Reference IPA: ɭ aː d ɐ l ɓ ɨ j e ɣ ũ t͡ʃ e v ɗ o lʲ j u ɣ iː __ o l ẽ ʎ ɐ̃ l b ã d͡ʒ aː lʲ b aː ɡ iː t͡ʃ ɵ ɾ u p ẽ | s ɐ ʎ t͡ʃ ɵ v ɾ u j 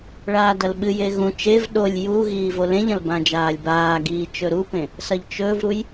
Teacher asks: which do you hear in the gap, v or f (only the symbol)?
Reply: v